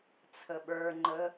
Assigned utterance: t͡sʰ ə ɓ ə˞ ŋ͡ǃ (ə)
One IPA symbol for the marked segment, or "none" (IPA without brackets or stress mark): ə